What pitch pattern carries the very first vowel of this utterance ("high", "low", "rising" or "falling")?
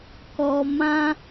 low